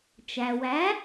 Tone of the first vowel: low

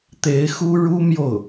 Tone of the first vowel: rising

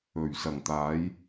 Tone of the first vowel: low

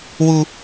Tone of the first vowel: high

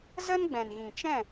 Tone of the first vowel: high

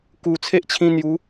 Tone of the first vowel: low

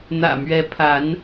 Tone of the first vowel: low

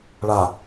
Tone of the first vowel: low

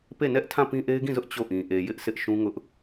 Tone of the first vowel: falling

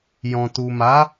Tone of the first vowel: low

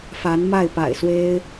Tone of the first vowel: rising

